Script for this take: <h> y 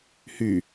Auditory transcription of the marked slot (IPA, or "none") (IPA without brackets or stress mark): h